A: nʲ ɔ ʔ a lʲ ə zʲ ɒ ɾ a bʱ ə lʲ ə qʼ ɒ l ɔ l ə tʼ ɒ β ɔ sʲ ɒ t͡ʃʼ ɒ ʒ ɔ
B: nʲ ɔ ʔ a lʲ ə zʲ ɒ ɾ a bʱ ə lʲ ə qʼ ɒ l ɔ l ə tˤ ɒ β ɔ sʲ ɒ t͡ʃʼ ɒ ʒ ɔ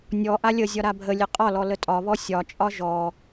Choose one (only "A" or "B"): A